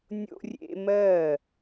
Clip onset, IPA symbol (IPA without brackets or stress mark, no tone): nʲ